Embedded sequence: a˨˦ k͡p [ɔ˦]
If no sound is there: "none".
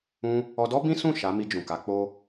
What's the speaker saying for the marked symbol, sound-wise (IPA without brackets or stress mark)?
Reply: o˦